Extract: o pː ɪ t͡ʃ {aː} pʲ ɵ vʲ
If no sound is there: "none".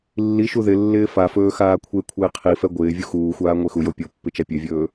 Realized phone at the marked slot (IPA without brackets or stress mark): a